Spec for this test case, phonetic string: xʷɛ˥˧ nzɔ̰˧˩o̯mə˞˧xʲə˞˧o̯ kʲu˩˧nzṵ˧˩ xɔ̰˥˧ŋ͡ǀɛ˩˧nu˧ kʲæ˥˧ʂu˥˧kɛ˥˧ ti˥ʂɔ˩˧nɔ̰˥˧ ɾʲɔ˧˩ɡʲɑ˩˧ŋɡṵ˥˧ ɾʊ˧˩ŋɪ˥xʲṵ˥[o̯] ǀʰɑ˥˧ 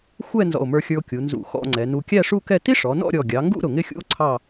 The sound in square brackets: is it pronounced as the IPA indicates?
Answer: yes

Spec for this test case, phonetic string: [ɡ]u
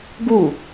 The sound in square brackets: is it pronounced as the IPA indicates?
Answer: yes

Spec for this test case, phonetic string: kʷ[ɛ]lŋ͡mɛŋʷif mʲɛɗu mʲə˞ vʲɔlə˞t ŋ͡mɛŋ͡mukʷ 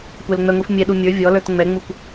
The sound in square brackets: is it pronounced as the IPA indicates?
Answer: yes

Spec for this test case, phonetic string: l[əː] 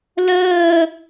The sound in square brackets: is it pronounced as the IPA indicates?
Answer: yes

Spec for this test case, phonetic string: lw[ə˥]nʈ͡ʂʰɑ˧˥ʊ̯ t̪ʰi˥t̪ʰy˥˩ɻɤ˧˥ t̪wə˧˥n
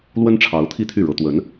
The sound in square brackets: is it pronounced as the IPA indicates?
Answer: yes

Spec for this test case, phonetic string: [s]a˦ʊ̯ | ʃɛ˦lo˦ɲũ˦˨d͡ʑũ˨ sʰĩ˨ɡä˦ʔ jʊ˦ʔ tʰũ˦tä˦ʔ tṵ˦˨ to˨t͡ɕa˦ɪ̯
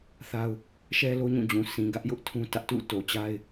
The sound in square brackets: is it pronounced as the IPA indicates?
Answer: no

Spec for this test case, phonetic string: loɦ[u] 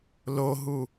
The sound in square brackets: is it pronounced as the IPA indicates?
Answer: yes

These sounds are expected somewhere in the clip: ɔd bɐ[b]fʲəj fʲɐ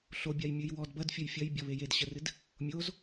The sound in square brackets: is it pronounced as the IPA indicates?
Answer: no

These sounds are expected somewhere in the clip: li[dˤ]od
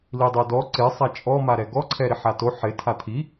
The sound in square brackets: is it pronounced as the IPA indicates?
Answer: yes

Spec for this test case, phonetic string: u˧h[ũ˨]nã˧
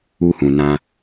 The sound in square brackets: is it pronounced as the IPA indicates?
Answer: yes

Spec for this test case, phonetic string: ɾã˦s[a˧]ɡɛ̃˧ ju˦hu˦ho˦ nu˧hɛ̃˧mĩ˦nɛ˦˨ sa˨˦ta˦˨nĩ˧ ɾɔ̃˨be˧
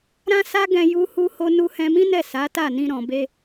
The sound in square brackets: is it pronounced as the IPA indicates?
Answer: no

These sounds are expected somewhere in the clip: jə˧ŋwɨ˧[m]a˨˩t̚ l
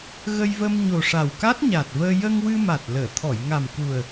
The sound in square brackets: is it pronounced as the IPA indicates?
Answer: yes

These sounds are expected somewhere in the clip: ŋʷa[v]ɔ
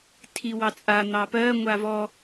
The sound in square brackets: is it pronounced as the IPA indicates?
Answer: yes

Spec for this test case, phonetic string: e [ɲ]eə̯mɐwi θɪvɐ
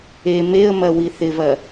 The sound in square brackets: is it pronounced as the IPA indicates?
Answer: no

